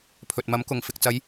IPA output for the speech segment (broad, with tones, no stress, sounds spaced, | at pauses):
pʰ ɵ˨ t̚ m ɐ˨˥ m k ʊ˨ ŋ f ɪ˨ k̚ t͡s ɐ˨˧ j